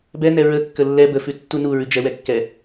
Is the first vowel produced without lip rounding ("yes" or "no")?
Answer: yes